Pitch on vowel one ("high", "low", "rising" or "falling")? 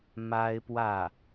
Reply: high